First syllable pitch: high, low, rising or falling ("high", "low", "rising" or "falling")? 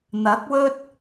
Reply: rising